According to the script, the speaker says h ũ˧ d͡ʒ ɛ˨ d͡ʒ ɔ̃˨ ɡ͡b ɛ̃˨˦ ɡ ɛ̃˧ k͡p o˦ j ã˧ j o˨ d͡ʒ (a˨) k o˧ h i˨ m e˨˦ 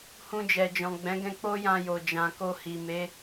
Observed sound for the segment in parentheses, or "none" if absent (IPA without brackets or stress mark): ã˨